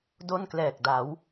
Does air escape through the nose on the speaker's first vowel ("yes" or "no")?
no